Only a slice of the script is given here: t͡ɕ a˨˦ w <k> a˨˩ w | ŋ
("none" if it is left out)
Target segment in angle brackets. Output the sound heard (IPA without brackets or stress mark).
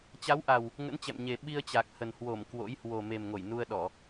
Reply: ʔ